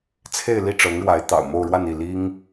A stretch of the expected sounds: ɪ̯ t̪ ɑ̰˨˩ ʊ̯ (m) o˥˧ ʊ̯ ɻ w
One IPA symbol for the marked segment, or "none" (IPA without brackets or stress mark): m